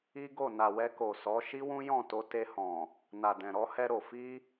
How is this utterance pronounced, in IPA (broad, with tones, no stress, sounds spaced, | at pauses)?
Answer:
i˦ ɡ o˦˨ n a˨ w ɛ˧ k o˨ s ɔ˨˦ ʃ i˦ w ũ˦ j ɔ̃˦˨ t o˧ t e˧ h ɔ̃˨ | n a˨ d ɛ̃˨ ɾ ɔ˨˦ h ɛ˧ ɾ o˨ f i˧